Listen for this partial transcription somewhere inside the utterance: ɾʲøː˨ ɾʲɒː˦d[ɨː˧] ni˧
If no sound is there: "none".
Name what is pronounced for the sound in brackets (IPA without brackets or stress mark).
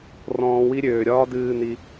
ɨː˧